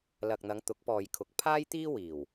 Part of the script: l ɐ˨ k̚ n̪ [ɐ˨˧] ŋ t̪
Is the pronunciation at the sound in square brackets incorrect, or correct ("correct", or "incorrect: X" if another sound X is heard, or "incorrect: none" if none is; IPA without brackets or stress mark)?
correct